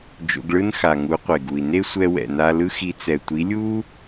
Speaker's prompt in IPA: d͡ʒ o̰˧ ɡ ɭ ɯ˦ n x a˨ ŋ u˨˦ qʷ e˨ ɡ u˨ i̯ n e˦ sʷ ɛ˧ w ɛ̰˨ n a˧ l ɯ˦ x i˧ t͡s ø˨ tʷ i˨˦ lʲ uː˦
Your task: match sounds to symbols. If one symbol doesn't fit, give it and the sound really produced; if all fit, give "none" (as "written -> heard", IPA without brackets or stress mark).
ø˨ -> ɛ˨